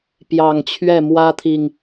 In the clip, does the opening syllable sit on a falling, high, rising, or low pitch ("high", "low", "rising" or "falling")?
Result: low